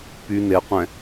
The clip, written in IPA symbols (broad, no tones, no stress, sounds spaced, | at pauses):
p y n e qʷ ɛ̃